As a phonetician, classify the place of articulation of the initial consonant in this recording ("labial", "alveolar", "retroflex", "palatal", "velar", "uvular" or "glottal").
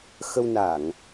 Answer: velar